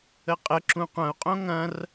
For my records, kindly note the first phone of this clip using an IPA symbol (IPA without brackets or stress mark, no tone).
ə